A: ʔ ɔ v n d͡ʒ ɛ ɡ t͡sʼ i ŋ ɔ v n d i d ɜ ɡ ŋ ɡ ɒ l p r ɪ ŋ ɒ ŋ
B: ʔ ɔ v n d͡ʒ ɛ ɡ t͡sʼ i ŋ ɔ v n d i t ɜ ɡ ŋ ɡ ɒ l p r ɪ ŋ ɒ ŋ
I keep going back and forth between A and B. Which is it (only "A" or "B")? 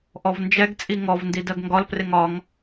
A